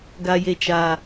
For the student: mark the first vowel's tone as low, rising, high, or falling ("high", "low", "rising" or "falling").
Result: low